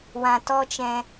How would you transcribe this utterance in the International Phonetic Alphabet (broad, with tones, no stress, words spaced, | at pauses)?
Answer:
wã˨tɔ˧t͡ʃɛ̃˨